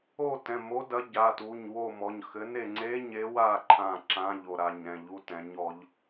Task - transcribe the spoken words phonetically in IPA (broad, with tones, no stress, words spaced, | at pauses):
o˦˨tɛ̃˩˧˩ mo˨˥dɐ˨˥ ɟa˩˧˩tu˩˧˩ɲwo˦˨ mɔ˩˧˩ɲxɘ˨˥ ne˦˨ŋ͡ǀe˧˥˧ɲe˨˥wa˦˨ ǃʰã˦˨ǁã˧˥˧ʎo˦˨ ɾa˦˨ɲ ɾɛ̃˦˨ʎu˧˥˧tɛ̃˨˥ɲ ɔ˨˥ʎ